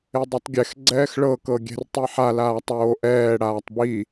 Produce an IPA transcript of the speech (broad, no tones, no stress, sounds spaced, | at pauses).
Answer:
e dˤ ɛ tˤ ɡʲ ɛ x ɡ͡ǀ ɛː x ɭ ɤ k ɤ ɡʲ ɛ̤ r tˤ i ħ a l aː tˤ oː ʔ ɛː ɽ aː tˤ b i